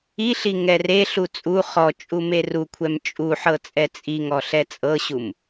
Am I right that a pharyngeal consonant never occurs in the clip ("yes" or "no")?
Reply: no